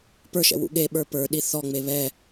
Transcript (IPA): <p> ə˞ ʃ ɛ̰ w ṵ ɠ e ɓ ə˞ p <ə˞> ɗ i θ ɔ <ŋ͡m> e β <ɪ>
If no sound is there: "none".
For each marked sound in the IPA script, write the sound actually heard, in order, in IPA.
p, ə˞, ŋ͡m, ɛ

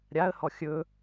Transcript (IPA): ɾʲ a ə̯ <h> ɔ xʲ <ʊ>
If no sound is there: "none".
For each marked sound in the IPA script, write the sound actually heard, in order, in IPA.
h, ɵ

